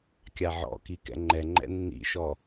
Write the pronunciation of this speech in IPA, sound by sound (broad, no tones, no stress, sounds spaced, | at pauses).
kʲ a ʕ ɔ̰ k i k ɛ̰ ŋ͡ǃ ɛ ŋ͡ǃ ɛ̰ nː ḭ ʃ ɔ